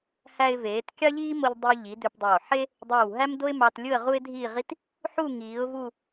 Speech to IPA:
h æ˧ ɪ̯ v eː˩˧ t kʲ ɑ˥ ʎ iː˥ m o˧ ʎ dˤ i˧ ʊ̯ ʎ i˩˧ d ø˧ p dˤ oː˧˩ ħ e˥ | dˤ oː˧˩ w ɦ æ˥ m d o˥ ɪ̯ m ɑ˧ t lʲ ɯ˥˧ ə̯ ʁ u˥ ɪ̯ dʱ iː˥˧ ʁ i˥ t | ħ u˥˧ ŋ iː˩˧ ʊ̯ v u˥˧

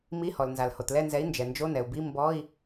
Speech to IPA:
m i˧˥˧ h ɔ˩ l n z a˩ l h o˩ t l ɛ˦˨ n z ɛ˨˥ i̯ n d͡ʒ ɛ˩ n d͡ʒ o˧˥˧ n ɛ˩ u̯ b i˧˥˧ m b ɔ˧˥˧ i̯

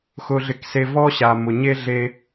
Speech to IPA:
x ʊ˧ ɮ ɪ˧ k s e˧ v ɔ˧ ɕ a˨ m ʊ˨ ɲ e˧ ɮ e˧

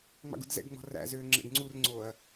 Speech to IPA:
ŋ͡m ɑ̰ ɡ ṵ d z ɛ̰ ɡ ŋ͡m ɔ̤ r æ̰ z øː ŋ͡ǁ ɛ̰ ɡ ŋ͡ǀ u r ŋ͡ǀ oː ɐ̯

